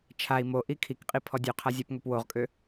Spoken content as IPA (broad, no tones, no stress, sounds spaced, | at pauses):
t͡ʃʰ a i̯ m o ʔ i kʰ i k qʼ i pʰ ɔ dʲ ø qʰ a zʲ a p ŋ ø p w o ʁ kʼ ø